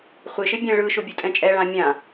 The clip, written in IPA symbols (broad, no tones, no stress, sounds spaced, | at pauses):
χʷ ɪ ʃ ɪ bʲ ɛ̃ ɭ ɯ ʃ ʊ bʲ ɯ tʼ ɛ̃ t͡ʃʼ ɛ ɭ ã mʲ ã